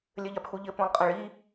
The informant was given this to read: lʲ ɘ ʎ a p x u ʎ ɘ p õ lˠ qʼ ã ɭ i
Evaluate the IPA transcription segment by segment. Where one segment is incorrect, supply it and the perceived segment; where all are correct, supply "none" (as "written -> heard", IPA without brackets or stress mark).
none